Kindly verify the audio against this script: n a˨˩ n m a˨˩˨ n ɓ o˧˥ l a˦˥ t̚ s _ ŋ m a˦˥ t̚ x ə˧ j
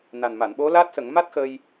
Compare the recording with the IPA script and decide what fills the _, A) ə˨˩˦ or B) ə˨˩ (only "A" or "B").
A